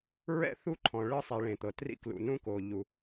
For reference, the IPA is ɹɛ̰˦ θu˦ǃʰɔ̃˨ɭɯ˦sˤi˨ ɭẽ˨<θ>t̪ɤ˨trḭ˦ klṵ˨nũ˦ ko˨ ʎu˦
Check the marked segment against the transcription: incorrect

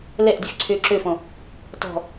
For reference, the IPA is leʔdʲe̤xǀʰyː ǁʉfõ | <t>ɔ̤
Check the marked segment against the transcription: correct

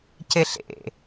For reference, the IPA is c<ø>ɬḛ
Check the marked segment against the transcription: incorrect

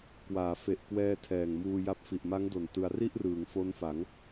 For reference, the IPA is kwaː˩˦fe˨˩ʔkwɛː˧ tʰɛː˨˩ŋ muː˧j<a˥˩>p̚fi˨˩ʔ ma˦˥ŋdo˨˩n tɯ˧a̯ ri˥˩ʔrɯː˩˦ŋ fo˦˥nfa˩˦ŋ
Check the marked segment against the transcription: incorrect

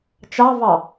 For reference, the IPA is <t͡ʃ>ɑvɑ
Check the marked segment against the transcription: correct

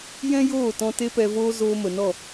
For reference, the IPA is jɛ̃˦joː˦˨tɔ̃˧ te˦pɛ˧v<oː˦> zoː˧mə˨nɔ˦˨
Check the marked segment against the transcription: correct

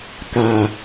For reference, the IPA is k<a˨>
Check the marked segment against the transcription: correct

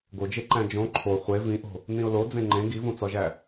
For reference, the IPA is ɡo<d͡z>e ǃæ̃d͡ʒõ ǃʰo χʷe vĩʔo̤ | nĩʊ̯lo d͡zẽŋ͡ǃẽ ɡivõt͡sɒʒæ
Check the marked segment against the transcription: incorrect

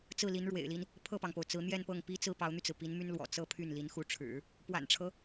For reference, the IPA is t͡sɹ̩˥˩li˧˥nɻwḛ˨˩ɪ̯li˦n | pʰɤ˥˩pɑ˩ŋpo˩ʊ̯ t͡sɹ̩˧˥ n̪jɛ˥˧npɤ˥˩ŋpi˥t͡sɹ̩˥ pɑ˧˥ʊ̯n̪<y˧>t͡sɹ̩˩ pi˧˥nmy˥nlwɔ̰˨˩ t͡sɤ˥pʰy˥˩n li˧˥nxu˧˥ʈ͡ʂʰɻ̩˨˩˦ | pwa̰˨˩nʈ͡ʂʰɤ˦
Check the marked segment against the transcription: correct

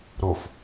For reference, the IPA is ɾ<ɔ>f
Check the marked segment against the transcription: incorrect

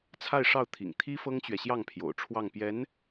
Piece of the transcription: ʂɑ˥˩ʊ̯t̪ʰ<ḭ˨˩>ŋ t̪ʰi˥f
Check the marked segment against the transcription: correct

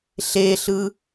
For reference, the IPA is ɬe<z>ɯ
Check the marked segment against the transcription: incorrect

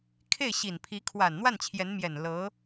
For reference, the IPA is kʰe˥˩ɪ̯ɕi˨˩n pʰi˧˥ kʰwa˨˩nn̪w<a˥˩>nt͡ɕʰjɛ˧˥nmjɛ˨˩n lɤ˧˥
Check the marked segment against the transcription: correct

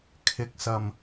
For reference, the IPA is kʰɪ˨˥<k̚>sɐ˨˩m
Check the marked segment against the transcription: correct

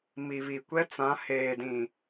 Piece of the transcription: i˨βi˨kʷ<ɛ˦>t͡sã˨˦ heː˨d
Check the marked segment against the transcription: correct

